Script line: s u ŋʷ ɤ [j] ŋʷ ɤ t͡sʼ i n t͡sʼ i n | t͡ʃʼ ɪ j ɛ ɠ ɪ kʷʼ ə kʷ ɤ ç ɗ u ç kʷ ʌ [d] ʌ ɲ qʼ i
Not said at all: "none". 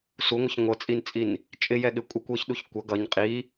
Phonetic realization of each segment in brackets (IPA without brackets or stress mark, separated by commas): ç, ɡ